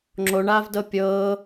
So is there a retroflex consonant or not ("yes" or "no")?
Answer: yes